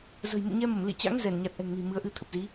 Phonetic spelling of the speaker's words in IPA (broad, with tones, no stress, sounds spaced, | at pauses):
z ə̤˨˩ j m ṵ˧˨ ɲ ɛ˧ m ə˧˩ m l ḭ˧˨ t͡ɕ a̰˧˥ ŋ z ɛ˧˩ n ɲ a˨˩ t̚ ʔ ɛ̤˨˩ ŋ n i̤˨˩ m ɨ˨˦ ə̯ ʔ ɨ˧ t̪ʰ ə˨˩ p̚ z i˨˦